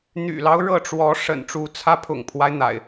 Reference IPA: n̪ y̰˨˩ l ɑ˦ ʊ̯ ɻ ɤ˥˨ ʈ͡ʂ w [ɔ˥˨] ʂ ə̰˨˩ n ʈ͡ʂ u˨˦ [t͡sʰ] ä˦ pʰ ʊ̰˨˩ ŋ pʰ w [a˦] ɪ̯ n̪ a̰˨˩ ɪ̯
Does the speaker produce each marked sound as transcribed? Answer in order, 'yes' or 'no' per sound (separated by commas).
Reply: no, yes, yes